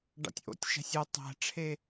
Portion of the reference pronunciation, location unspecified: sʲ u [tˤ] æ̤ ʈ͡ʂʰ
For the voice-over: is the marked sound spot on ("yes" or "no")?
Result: yes